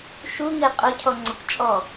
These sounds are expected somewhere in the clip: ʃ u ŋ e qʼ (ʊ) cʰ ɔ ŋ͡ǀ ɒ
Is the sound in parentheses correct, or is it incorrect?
correct